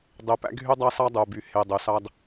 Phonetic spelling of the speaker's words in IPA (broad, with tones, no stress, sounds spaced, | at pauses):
dˤ e˨ p æ̰˦ ɡʱ y˦ dˤ ɑ˦ s ɑ˦ dˤ u˨ b y˨ h e˨ dˤ ø˨ s ɑ˦ d